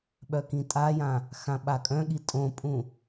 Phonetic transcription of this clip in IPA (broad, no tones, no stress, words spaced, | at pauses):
ɓœkĩtʼajã | xãɓakʼœ̃ɠi tʼõpʼũ